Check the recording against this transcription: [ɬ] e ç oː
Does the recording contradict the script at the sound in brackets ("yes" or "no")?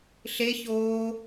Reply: no